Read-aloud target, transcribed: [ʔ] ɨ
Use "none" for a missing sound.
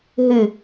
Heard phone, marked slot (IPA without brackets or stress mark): ɦ